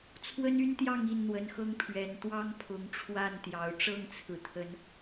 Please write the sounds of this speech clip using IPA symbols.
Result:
t͡sʰ w ə˦ n y˦ n t̪ j ɑ˥˨ ŋ i˥˨ n n̪ w ə˨˦ n x ɤ˦ ŋ pʰ ɥ ɛ˨˩ n t̪ w ɑ˦ ŋ pʰ ʊ˨˦ ŋ ʈ͡ʂʰ w a˥˨ n t̪ j ɑ˨˦ ʊ̯ ʈ͡ʂ ɤ˥˨ ŋ t͡sʰ ɹ̩˩ t̪ʰ ə˨˦ n

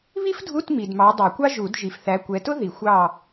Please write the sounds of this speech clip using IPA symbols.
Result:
β i˥ f dʱ u˧˥˧ t m i˨ d m ɑ˨˦ dˤ ɛ˨˩˦ kʷ ɑ˥ ʒ u˨˩˦ d ʒ i˨ f θ æ˨˦ kʷ ɛ˨˦ t ʊ˥ ð i˨˩˦ xʷ ɑ˦˨

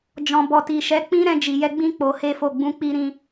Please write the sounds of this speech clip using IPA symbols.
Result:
d͡ʒ ɔ̃˨ b ɔ˨ t i˨ ʃ ɛ˨˦ k͡p ĩ˦ ɾ ɛ̃˧ d͡ʒ i˨ j ɛ˧ ɡ͡b ĩ˦ k͡p o˧ h e˦ f o˦˨ ɡ͡b ũ˨˦ k͡p i˧ ɾ ĩ˧

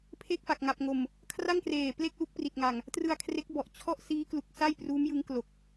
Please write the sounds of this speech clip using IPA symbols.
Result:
pʰ e˥˩ k̚ f a˨˩ k̚ ŋ a˨˩ p̚ ŋ o˨˩ m | kʰ r a˥˩ ŋ k r eː˨˩ p l e˥˩ k̚ l u˦˥ k̚ p r i˨˩ t̚ ŋ a˨˩ ŋ | t r ɯ˧ a̯ kʰ r e˦˥ k̚ b ɔ˨˩ ʔ t͡ɕʰ ɔ˥˩ ʔ s iː˦˥ k l u˨˩ k̚ s a˥˩ j p r uː˦˥ m j ɯ˦˥ ŋ k l o˨˩ k̚

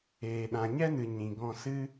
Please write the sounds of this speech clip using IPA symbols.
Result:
eː˨ ɗ ã˨ ɲ ɛ˦ n ɨ˨ ɲ ĩ˨ ɡ ɔ̃˧ s ɨ˦

